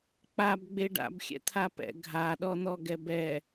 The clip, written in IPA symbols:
k͡pabɡ͡be ɖa̰bxʲɛ̰t̪ʰapɛ̰ ɡʱaɗɔn̪ɔɡɛb ɛ

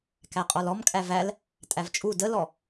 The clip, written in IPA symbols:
kæqʼɔlɔmkʼæv æl | tʼævt͡ʃʼu dəlɔ

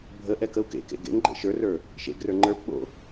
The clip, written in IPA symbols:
bʱə ʔɛkəu̯kḛkḛ ɡḛŋ ɡ͡ǃḛʃə˞rə˞ | ʃḛɡrə˞ ŋ͡ǃə˞pɓo̰

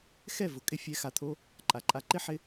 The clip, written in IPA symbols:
xɛ˦˨vʊ˨ kʼɪ˧fʲɛ˨˦xa˨t̪ʰo˧ | ǃʼa˨ǃʼa˧ ǃɪ˦ħɪ˧

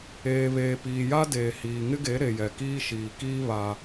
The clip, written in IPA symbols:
eː˨βeː˨piː˨ja˦ deː˨ hiː˨ŋɪ˦ɡe˨˦ ɾe˨jɛ˨kiː˦ ʃiː˨kiː˦ βa˦

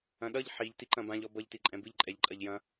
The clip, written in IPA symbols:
ɐ̃ɗʌʎ ħiʎ tiǃɐ̃bãʎ ɔbʌʎ tiǃʼɛ̃bɨʎ ǃʼɛʎǃʼɐʎjɐ̃

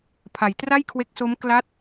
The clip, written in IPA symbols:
pʰa˩˦jtra˥˩jkʰwe˦˥k̚so˦˥m kla˦˥t̚

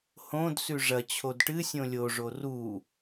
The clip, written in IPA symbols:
hõdsʉ ʐɐt͡ɕʰod ʈɨsʲõ lʲoʐo ru

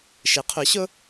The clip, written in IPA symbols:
ʃɪ˩˥qʰʊ˩˥ɕʊ˥

